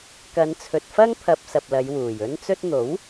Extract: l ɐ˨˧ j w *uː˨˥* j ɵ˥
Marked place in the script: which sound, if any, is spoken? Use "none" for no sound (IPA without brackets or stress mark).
uː˨˩